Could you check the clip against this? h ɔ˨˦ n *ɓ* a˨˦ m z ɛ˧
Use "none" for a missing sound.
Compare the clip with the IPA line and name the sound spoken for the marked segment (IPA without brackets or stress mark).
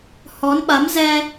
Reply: ɓ